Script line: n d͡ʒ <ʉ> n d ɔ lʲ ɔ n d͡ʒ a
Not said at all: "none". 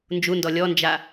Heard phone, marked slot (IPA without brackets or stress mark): u